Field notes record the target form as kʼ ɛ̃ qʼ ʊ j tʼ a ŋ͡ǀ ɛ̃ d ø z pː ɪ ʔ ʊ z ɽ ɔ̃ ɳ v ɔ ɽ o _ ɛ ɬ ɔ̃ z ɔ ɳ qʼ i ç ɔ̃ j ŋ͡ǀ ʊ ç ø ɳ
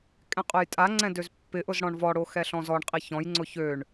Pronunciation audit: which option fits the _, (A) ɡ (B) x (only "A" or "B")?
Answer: B